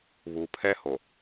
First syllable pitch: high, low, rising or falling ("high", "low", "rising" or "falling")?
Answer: low